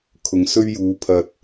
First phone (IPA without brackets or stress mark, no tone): kʰ